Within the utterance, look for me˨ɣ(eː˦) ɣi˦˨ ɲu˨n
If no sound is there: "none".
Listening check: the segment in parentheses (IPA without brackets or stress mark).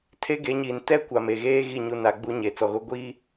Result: eː˦